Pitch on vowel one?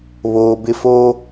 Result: low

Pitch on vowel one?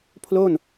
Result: falling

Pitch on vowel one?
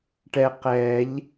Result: low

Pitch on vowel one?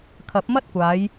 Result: rising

